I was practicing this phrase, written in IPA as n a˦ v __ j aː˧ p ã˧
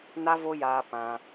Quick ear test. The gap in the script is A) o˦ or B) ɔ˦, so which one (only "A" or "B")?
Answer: A